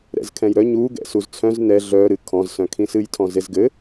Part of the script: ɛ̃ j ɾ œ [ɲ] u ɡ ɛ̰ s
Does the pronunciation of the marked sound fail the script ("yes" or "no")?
no